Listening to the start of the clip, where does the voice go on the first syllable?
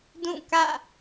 falling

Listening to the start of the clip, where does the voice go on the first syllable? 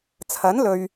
rising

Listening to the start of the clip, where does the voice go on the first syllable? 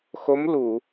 rising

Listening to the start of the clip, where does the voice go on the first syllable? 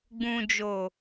low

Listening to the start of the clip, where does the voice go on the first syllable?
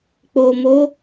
low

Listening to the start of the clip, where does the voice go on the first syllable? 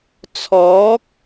rising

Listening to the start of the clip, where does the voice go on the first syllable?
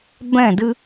falling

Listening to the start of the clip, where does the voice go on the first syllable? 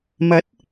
rising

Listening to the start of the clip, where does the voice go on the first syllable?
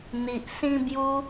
low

